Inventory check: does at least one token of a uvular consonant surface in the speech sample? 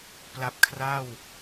no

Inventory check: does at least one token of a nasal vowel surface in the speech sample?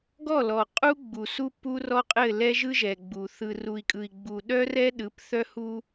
no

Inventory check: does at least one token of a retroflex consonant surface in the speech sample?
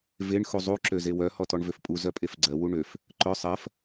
yes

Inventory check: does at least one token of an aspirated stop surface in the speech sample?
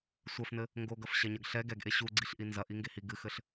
no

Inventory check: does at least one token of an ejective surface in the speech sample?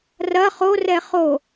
no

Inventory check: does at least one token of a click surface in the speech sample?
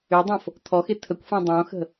no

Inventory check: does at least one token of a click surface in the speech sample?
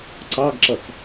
yes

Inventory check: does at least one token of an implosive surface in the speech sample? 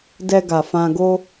no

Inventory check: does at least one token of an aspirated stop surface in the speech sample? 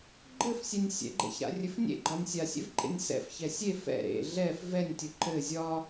no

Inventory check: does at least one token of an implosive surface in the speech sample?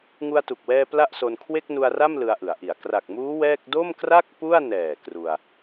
no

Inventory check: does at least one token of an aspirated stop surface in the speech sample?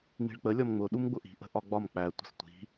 no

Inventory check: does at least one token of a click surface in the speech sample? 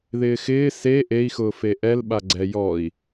yes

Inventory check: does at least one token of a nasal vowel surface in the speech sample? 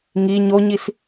no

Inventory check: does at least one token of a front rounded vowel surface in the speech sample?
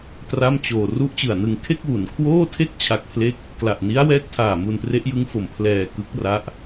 no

